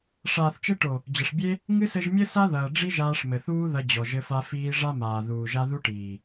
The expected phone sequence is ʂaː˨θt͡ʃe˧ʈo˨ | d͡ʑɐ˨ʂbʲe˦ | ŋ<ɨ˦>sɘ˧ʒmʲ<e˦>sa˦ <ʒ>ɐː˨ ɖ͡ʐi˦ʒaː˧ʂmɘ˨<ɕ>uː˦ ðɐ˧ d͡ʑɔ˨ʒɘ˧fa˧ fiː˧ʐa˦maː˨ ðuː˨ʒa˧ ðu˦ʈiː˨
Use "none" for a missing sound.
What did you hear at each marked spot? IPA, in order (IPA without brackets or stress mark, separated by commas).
ɨ˦, ɘ˦, ð, θ